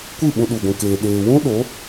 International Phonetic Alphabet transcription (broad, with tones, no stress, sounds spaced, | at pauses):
kʷ ɨ˦˨ ɓ ũ˧ ɗ u˨ ɡʷ ũ˨ k eː˨ ɗ eː˨ w ũ˦ ɗ o˨˦